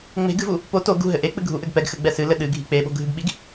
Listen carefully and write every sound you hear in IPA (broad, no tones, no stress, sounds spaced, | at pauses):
ŋ͡m e̤ ɡ ɨ v u | p o t o ɡ ṳ ɦ ɘ ʔ e k͡p ɨ ɡʱ u ʔ ɘ ɡ p ɛ ɡ x ɘ ɡ͡b ɛ s ɨ l ɘ ɗ ɨ ɡʱ i̤ k͡p e ɓ o̤ ɡʱ ɨ ɡ ɓ i ɡ